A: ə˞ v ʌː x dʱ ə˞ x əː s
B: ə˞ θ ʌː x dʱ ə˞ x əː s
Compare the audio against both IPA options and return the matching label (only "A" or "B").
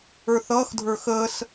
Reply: B